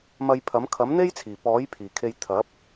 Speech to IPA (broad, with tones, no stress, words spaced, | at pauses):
mɐ˧jpʰɐ˨˥m kʰɐ˨˥mn̪e˥jt͡sʰiː˨˩ pɔː˨˥j pʰiː˨˩kʰe˧j t̪ʰɐ˨˥p̚